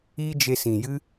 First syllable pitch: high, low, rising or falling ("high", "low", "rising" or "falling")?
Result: high